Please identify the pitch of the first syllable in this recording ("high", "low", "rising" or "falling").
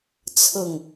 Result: falling